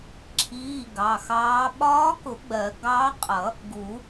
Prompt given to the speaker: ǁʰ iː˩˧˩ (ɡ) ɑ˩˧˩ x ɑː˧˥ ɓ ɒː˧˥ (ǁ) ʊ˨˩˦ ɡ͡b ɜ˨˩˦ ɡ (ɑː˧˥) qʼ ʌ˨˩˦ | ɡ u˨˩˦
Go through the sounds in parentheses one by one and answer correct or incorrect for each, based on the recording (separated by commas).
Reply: correct, incorrect, correct